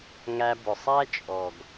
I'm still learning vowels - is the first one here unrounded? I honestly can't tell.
yes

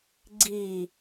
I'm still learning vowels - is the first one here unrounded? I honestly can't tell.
yes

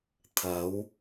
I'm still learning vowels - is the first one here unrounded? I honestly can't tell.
yes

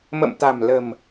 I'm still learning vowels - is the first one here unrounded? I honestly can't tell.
yes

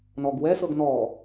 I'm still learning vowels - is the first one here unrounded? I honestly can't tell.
no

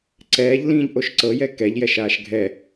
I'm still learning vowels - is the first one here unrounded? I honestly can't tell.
yes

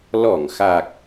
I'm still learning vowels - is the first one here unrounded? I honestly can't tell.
no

